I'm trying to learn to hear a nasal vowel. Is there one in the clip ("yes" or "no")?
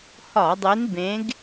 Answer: yes